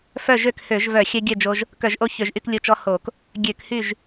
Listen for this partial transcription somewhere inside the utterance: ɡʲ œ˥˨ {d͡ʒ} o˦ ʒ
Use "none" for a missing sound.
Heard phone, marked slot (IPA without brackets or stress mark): d͡ʒ